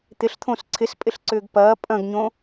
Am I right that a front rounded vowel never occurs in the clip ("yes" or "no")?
no